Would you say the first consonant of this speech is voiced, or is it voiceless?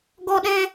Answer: voiced